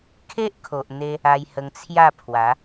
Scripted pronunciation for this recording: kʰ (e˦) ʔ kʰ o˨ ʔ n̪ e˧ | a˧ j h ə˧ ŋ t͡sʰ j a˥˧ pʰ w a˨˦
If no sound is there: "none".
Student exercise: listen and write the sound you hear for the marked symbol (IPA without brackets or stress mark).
e˦